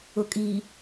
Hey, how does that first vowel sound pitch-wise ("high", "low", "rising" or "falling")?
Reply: low